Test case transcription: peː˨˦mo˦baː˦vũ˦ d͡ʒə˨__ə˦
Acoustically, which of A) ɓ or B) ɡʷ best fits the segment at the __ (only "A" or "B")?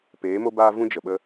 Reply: A